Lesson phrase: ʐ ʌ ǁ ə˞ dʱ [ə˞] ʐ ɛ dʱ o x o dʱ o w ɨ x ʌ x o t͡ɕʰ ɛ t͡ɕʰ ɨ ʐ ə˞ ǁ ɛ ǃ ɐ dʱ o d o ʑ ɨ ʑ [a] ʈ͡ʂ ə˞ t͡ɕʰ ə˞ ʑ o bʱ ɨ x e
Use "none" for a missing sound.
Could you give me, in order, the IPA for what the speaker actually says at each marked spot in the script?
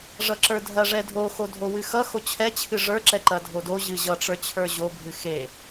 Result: ɐ, ʌ

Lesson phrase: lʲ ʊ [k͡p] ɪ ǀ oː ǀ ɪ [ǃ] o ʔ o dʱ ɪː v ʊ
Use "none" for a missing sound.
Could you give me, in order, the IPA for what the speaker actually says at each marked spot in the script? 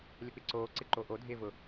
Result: k͡p, ǃ

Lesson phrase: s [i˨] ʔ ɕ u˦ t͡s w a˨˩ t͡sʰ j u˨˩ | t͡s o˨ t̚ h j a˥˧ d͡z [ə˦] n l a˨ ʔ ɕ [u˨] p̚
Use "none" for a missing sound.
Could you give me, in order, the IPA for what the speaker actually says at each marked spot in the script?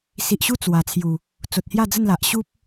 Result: i˨, ə˥˧, u˦

